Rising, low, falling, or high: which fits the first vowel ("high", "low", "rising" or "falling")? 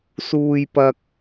high